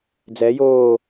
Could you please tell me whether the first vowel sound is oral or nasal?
oral